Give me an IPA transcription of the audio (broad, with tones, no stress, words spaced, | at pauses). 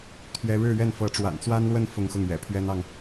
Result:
t̪ʰɥɛ˥ ɻɻ̩˥˧ɥɛ˥˩n fɤ˧˥ʈ͡ʂwa̰˨˩nt͡swa˥nlwə˥˧n fʊ˥˧ŋxʊ˥˩ŋɥɛ̰˨˩ pʰɥɛ˥nɑ˨ŋ